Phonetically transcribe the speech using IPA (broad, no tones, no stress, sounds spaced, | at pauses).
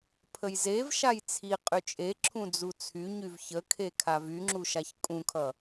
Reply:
pʰ ə j z e v ʃ a j t͡sʰ i qʼ y t͡ʃʼ e ǁʰ ũ d͡z u t͡sʰ y ɲ y v ç ə kʰ e kʰ a v y ŋ͡ǁ u ʃ a ç kʼ ũ kʰ ʌ